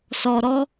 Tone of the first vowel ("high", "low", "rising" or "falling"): low